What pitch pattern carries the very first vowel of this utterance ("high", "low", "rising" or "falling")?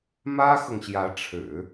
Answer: high